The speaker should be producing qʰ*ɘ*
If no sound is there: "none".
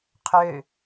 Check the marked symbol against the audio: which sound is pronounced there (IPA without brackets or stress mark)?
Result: ø